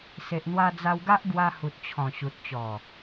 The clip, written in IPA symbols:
se˨ʔn̪wa˧ d͡za˧wɡa˦ʔ ɡwa˧hu˨t̚t͡ɕʰɔ̃˨˩ ɕu˨t̚t͡ɕɔ˨˩

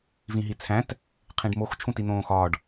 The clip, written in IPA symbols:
vĩɦit͡sʰæ̃t | qʰĩɖmox t͡ʃʰũtin̪õːxɒːɖ

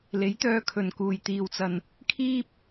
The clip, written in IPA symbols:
le˨˥jt̪œː˧kʰɵ˨nkuː˨j t̪iː˧wt͡sɐ˧n | kʰiː˥p̚

